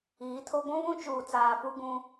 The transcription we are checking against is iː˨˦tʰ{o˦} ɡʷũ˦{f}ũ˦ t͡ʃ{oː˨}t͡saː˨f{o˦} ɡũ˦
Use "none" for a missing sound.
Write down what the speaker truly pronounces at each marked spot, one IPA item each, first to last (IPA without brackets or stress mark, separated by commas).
o˦, β, uː˨, u˦